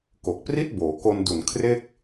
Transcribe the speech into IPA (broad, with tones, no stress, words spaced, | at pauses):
ko˨˩k̚pri˥˩t̚boː˩˦ ko˧n du˨˩n kʰre˥˩k̚